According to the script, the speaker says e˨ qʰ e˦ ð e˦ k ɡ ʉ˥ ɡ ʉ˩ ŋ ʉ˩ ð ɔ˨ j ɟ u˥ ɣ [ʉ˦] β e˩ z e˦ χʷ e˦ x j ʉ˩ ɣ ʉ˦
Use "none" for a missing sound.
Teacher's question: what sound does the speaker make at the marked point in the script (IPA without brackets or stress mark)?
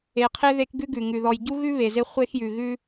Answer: ʉ˥